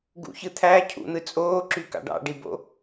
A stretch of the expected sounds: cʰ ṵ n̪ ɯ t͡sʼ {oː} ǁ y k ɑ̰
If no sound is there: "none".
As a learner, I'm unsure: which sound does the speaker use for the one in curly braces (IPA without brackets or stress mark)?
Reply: oː